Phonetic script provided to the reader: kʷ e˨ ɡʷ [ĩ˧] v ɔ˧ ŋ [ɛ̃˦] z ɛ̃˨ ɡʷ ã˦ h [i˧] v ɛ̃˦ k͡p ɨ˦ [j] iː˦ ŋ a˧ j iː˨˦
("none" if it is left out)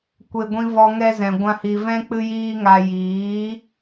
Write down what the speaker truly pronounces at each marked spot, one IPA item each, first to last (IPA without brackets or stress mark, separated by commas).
ĩ˧, ɛ˦, i˧, j